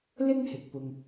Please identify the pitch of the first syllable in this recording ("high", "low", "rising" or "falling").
high